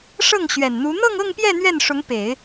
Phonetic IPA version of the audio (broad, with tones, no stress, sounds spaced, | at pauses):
ʂ ɤ˥˩ ŋ ɕ ɥ ɛ˨˩ n n̪ u˧˥ n̪ ɤ˥˧ ŋ ɤ˥˧ ŋ p j ɛ˥˧ n̪ ɥ ɛ˥˩ n ʂ ʊ˧˥ ŋ p e˨˩˦ ɪ̯